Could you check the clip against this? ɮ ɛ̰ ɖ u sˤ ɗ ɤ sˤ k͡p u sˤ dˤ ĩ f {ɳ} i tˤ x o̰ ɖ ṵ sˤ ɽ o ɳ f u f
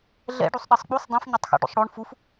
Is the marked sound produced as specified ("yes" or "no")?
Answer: no